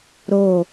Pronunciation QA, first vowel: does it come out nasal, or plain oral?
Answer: oral